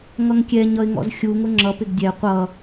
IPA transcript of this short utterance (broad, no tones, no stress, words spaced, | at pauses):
ŋʌŋkʲɛɲ ʌɪ̯ŋɔ̰zxʲu ŋʊŋ͡ǁʌ pɪɡdʲɛ qʷʌ